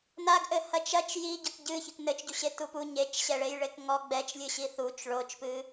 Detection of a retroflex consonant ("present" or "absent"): present